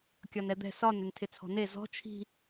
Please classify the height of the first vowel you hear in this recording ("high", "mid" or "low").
low